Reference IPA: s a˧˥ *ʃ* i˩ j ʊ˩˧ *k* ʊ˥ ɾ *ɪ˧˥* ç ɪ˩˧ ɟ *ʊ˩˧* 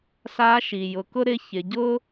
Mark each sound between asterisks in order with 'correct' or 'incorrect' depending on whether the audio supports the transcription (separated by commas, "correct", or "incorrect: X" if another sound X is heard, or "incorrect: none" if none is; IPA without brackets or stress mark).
correct, correct, correct, incorrect: ʊ˥